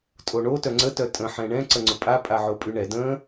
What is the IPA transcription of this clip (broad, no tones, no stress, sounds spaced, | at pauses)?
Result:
tʼ o ɳ o t œ ŋ͡ǀ ə t œ tʼ ə̃ ħ ɛ̃ ɳ ɛ̃ ǀ ə ŋ͡ǀ ʊ pʼ a pʼ a ʕ o pʼ y ɳ ɛ d ə̃ː